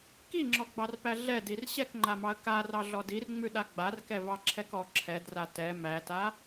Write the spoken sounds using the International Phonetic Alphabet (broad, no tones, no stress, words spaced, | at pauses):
kiŋ͡ǁɔɡ͡bɑrpæ ɮɛdir ɕɛkŋ͡ǃamɑə̯ karɑɮɔ dirŋ͡mʉɗa ɡ͡barkɛvɑǁʰɛk ɔ ǁʰɛdra tɛ mæta